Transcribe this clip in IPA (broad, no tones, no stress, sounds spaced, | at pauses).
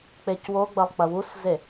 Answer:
k͡p e c w o ɡ͡b ɐ lˠ k͡p ɐ w u s z e